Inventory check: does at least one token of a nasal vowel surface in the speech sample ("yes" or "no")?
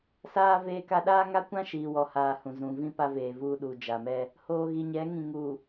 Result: yes